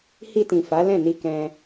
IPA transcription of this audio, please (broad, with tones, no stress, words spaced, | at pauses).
hi˧tĩ˨ fa˨˦lɛ̃˦˨ ni˧kɛ̃˧